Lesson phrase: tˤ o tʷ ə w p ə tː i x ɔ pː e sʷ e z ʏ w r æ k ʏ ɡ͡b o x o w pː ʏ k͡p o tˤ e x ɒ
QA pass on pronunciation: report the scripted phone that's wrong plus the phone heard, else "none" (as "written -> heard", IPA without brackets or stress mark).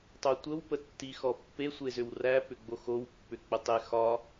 k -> p